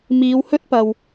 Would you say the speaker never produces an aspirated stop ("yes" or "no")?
yes